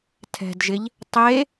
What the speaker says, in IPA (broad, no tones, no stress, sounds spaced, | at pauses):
tʰ ɛ̤ d ʒ ɪ ʎ | tˤ e